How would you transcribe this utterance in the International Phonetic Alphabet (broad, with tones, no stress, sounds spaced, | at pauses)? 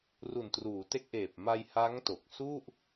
r u˨˩ n t r uː˩˦ t e˦˥ k̚ ʔ eː˨˩ p̚ m a˧ j h a˦˥ ŋ t o˨˩ k̚ s u˥˩ ʔ